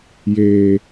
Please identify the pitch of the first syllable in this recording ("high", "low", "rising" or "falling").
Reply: low